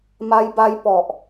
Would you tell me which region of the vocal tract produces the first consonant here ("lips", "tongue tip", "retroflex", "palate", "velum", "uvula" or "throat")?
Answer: lips